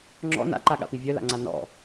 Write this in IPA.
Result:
ŋ͡ǁ ɔ̰ n a̰ ǃ a ɠ a̰ p i vʲ œ l a̰ ŋ͡ǀ a n ɔ̰

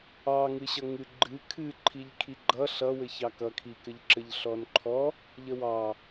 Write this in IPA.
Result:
ɑ ŋ ɨ ɕ ʌ ŋ ɨ ɡ͡ǃ ɨ kʰ ɨ ǃʰ i ʎ kʰ i ɡ͡ǃ ʌ ɬ ʌ w ɘ ç ɑ k ʌ kʰ i k ɘ ʎ ǁ ɘ ʎ ɬ ɔ n ǃʰ ɔ | ʎ ə w ɑ

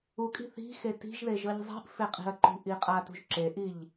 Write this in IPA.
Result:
u kʼ i̤ θ i̤ x e t i̤ ʒ ð e ʒ ɤ ʎ zˤ i̤ ʔ f e qʼ i̤ ɐ̯ ǃ ṳ ʔ i qʼ a t ṳ ʒ ǁ e ʔ i ʎ

